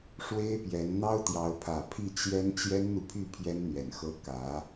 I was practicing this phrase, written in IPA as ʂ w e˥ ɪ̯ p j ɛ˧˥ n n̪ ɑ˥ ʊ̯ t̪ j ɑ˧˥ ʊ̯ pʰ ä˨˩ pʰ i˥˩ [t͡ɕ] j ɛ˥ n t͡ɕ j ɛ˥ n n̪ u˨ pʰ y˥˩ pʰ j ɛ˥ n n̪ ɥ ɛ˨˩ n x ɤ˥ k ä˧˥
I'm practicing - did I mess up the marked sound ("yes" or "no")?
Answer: no